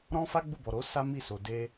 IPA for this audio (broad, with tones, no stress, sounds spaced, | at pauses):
ɾ ɔ̃˦ f a˦ ɡ͡b u˦˨ b ɔ˨ ɾ o˨˦ s a˦ m i˦˨ s o˨ d e˧